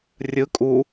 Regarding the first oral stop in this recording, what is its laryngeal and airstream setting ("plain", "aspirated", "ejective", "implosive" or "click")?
ejective